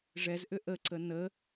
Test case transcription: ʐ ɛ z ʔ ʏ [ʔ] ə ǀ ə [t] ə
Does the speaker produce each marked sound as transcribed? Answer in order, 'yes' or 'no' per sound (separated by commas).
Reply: yes, no